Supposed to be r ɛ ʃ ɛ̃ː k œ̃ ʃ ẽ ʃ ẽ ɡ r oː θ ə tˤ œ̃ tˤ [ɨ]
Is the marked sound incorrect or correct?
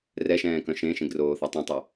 incorrect